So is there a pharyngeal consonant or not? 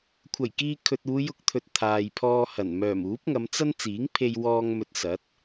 no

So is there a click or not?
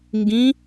no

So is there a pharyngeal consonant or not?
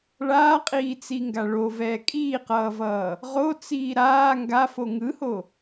no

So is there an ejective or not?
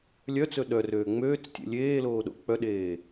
no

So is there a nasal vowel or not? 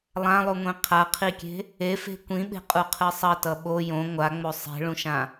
yes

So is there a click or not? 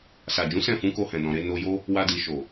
no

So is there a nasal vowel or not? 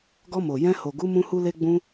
yes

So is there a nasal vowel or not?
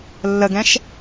yes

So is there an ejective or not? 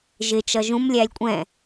yes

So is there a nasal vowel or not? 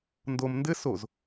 no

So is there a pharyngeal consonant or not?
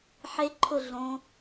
yes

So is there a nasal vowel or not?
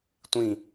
yes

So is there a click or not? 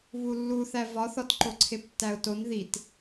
yes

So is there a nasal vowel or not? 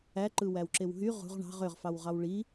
no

